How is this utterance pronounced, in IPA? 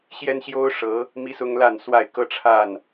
ɕjɛ˦nɕjo˦ʊ̯ ʂɤ˨˦ | mi˦sʊ˦ŋla˥˨nswa˥˨ɪ̯ kɤ˦ʈ͡ʂʰa˥˨n

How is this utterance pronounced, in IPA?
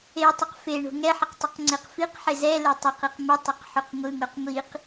etˤʏq feɳo̤ ŋɛħəq tˤʏqŋ͡ǀeqfiqħe zɛ letˤɛqiq mətˤʏq ħuqŋʷɯŋoq ŋʷiq

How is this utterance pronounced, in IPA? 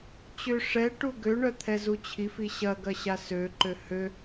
t͡ɕʏ ʂɛ ʈuɡøɳœ t̪ʰɛzut͡ɕʰifi ɕɐɡɐ ɕasøǃø hø

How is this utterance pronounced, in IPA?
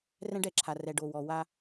rɛ̃˦ɖɛ˨ǁʰa˨ rɛ˨ɖo˨wɔ˨ wa˦

